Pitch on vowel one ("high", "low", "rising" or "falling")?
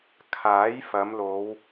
rising